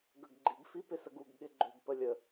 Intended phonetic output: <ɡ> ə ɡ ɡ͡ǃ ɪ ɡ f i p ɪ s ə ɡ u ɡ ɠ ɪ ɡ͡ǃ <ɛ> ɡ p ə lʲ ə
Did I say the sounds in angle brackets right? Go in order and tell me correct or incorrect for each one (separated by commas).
correct, incorrect